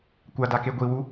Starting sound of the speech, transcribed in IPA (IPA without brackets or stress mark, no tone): kʷ